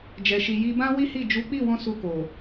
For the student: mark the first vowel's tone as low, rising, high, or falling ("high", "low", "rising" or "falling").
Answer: low